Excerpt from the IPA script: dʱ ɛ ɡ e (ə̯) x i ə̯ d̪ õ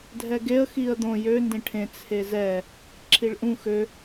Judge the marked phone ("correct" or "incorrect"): correct